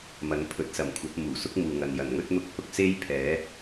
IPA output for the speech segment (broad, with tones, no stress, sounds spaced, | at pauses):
m ɐ˨˥ n pʰ ɵ˨˥ t̚ s ɐ˨˩ m kʷʰ ɐ˨˥ p̚ m uː˨˩ s ʊ˥ k̚ m uː˨ ŋ ɐ˨ n j ɐ˨˩ n ŋ ɵ˥ t̚ n̪ ʊ˨ k̚ h ʊ˧ k̚ s e˥ j pʰ ɛː˨˥